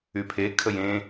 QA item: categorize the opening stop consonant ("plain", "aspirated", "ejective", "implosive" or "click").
aspirated